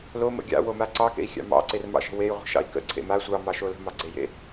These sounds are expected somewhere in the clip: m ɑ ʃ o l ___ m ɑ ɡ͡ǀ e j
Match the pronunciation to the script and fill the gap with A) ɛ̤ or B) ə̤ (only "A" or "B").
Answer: B